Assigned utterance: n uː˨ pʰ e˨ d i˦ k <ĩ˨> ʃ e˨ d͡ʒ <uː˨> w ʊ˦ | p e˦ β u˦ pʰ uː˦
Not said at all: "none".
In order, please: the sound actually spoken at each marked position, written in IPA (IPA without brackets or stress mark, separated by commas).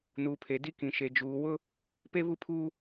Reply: ĩ˨, uː˨